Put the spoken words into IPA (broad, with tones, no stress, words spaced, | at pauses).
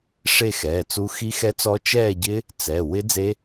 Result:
ʂe˥˧xɛː˩˧˩t͡su˦˥ xi˦˥xɛ˦˥t͡sɔ˦˥ t͡ʃɛː˥˧ɟɪ˦˥ | t͡sɛ˩˧˩ wɪ˦˥ d͡ze˦˥